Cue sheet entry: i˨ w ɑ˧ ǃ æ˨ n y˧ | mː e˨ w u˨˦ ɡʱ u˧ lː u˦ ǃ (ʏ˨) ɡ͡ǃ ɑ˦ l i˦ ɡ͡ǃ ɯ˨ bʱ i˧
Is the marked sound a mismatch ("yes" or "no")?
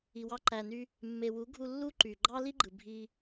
yes